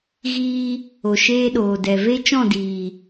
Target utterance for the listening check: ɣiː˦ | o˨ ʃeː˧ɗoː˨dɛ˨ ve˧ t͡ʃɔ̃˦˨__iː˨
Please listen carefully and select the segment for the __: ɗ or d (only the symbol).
d